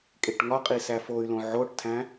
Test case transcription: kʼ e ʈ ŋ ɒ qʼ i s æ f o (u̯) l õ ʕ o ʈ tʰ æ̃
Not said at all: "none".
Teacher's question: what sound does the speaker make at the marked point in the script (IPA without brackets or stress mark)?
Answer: y̯